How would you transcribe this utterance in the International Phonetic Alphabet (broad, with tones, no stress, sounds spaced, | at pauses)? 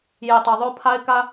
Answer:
j i˨ tˤ ɤ˨ ðˤ o˦ pʰ a˦ ɪ̯ k a˦